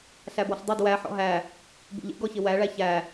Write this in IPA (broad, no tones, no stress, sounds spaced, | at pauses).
ɬ æ b ɔ ɬ dˤ æ d w æ ħ ɔ̰ ɦ æ | b ṵ ʎ ḛ ɡ ɔ ç ɪ w æ ɭ æ ç æ